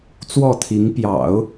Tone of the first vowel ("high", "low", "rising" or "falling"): falling